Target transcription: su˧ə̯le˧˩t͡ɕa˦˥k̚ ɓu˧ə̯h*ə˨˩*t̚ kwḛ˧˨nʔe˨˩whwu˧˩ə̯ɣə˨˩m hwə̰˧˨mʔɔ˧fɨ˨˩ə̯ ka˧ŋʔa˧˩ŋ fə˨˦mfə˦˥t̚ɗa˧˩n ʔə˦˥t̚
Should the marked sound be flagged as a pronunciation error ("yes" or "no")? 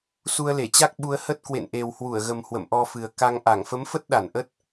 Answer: yes